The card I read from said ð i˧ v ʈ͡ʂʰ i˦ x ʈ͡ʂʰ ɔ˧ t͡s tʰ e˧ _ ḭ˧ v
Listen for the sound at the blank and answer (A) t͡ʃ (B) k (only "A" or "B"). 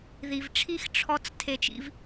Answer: A